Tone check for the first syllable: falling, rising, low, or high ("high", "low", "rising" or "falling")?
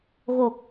low